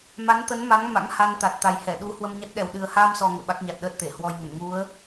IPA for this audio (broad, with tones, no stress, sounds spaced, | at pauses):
m a˨˦ n t̪ ə˨˦ n m a˨˦ ŋ m a̰˧˥ ŋ h a˧ n t̪ a˨˩ t̚ t̪ a˨˩ j h ɛ˧˩ ɗ u˨˦ h w ə˧ m ɲ a˦˥ t̚ ɗ ɛ˨˩ w ɗ ɨ˨˩ ə̯ h aː˧ m s ɔ˨˩ ŋ ə̰ː˧˨ ɓ a˦˥ k̚ ɲ a˨˩ t̚ ɗ əː˦˥ t̚ t̪ e˧˩ h w ɔ˧ j ŋ ə˧˩ n ŋ u˨˦ ə̯